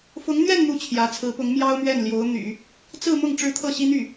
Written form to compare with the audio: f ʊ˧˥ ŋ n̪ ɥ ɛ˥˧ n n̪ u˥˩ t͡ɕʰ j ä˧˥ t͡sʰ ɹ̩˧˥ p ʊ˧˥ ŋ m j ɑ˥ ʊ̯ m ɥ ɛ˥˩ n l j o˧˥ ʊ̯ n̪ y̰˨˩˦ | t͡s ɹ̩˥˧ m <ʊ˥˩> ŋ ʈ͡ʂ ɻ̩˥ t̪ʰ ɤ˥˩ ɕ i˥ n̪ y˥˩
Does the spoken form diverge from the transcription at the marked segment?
no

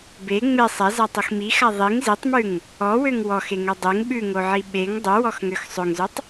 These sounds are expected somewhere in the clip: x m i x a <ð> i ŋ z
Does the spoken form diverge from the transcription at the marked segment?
yes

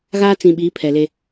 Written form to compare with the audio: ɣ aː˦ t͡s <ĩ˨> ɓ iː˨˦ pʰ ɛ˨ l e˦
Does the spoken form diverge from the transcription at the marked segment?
no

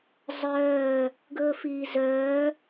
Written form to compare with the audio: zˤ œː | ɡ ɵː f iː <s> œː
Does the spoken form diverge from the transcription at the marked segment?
yes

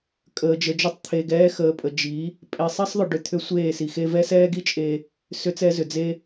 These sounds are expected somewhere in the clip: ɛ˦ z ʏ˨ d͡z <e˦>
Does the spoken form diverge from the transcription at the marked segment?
no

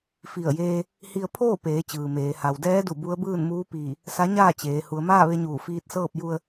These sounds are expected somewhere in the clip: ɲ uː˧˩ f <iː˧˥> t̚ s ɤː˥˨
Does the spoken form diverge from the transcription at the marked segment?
no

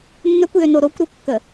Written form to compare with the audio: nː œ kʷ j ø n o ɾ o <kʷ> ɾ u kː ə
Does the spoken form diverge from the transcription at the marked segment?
no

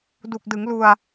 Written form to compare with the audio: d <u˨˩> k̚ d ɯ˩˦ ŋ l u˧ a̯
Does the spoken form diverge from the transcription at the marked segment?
no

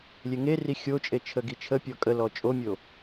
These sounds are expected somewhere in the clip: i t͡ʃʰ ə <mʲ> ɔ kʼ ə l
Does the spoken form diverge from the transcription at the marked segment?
yes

